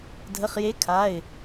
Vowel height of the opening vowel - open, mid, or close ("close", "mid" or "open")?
mid